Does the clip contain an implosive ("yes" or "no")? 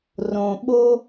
yes